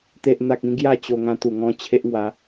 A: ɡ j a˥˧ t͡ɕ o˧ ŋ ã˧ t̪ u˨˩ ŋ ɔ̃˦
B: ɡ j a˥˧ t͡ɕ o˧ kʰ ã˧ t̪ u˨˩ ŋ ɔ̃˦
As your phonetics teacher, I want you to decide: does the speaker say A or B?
A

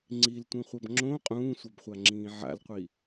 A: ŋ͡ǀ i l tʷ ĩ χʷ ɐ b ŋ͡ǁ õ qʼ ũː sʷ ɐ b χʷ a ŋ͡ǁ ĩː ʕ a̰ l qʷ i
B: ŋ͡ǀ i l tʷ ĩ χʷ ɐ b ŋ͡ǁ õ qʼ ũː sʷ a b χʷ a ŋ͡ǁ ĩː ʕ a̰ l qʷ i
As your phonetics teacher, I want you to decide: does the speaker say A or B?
B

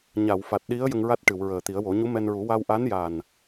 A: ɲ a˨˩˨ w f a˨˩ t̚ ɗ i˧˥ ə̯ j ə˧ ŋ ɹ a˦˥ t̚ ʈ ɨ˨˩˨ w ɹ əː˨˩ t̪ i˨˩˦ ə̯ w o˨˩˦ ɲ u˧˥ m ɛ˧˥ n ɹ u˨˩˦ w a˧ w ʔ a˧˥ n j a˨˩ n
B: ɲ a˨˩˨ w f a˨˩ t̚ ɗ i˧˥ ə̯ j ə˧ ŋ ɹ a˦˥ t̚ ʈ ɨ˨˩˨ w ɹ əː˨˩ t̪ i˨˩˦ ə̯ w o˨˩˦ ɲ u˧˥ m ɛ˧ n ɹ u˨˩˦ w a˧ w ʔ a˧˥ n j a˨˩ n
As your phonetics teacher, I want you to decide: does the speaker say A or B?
B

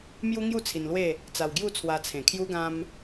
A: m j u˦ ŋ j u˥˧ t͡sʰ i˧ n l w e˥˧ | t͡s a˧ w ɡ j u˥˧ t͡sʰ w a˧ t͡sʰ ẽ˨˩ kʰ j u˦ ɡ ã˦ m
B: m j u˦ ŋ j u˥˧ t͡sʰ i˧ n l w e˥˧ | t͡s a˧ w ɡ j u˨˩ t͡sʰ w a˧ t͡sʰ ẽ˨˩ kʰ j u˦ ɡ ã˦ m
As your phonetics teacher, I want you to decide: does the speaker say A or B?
A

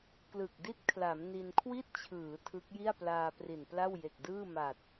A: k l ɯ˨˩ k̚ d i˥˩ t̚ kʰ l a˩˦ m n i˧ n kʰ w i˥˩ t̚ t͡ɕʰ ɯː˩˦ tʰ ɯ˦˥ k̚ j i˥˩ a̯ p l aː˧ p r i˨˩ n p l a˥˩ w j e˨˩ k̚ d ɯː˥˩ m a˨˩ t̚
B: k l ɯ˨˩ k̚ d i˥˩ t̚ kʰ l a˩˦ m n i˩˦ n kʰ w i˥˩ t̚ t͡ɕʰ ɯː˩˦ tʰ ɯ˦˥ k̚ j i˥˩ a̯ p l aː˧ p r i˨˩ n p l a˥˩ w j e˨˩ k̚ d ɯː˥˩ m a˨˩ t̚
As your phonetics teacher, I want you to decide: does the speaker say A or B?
A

